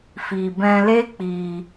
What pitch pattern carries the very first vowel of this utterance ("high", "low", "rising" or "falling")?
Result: low